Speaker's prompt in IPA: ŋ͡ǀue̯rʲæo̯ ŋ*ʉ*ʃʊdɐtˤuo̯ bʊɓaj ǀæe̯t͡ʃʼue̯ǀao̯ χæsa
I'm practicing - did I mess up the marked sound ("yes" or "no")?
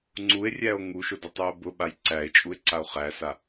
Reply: yes